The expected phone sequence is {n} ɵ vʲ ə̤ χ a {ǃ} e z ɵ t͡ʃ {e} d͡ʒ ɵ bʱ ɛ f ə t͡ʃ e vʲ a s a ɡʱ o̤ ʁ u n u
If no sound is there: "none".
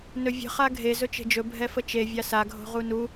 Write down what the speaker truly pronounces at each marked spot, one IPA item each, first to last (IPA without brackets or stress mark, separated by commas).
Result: n, ɡʱ, e̤